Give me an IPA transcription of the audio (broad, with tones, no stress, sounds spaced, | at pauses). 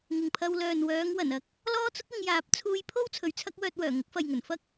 ŋ ɪ˨ ŋ pʰ ɐ˧ w l œː˨ n w œː˨˧ ŋ w ɐ˨˩ n ɐ˧ k̚ | l ɔː˥ t͡s ʊ˥ k̚ ɪ˨˧ ŋ j aː˨˥ p̚ t͡sʰ uː˧ j pʰ o˥ w t͡sʰ ɵ˨ ɥ t͡sʰ ɐ˥ k̚ w œː˧ t̚ w œː˨˩ ŋ ʊ˨˥ k̚ f ɐ˨ j ŋ ɵ˨˩ n f ɐ˥ k̚